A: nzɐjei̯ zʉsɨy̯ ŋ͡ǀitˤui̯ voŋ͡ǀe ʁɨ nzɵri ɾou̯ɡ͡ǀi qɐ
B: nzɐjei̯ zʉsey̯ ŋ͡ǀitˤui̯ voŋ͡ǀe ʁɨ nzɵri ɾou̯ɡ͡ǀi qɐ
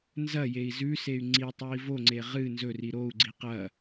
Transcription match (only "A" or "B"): B